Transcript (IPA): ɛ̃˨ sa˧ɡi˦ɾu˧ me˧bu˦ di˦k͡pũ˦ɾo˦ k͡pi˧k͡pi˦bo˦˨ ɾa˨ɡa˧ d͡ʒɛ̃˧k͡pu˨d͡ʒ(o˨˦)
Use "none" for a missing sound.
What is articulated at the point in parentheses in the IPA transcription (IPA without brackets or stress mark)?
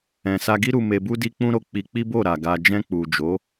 o˨˦